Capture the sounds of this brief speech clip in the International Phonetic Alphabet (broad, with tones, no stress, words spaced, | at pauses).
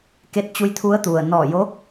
ke˧t̚t͡ɕu˧j t̪ʰu˧˥ə̯t̪u˩ə̯ nɔː˧˩jo˧˥